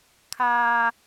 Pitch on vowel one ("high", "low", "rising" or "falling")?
high